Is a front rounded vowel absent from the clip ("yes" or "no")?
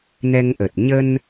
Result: yes